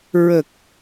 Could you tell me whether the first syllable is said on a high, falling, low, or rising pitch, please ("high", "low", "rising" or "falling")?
low